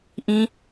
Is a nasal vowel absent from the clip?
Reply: no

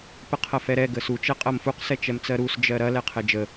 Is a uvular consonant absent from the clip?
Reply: no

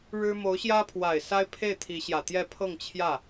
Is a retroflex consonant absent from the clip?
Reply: no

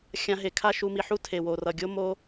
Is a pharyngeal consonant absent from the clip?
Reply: no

